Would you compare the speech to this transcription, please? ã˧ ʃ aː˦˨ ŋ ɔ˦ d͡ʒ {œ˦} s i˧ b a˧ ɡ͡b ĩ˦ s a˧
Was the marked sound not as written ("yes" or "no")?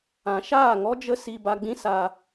yes